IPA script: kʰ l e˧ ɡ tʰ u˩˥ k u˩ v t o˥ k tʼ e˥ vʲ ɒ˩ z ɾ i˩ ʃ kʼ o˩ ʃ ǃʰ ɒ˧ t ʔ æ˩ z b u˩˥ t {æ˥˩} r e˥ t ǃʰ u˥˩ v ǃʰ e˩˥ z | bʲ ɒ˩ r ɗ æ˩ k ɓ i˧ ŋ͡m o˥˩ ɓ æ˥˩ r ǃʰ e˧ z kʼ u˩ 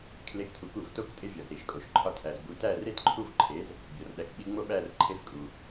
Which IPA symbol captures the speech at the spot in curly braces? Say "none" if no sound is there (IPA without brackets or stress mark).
æ˥˩